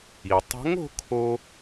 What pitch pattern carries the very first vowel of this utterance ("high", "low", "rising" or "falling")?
low